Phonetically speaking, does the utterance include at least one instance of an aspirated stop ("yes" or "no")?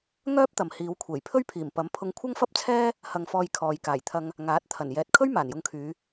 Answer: yes